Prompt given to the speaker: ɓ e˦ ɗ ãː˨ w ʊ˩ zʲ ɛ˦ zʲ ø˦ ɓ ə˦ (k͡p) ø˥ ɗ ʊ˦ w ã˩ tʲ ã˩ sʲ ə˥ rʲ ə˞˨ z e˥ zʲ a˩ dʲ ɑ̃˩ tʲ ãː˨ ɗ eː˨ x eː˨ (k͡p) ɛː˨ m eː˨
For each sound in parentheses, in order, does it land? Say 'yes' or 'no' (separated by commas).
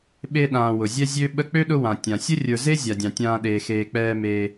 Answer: yes, yes